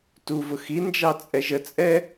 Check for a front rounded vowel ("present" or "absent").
absent